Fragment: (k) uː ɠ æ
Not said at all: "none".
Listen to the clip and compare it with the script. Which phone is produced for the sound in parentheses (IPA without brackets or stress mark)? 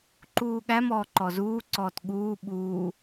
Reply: ǃ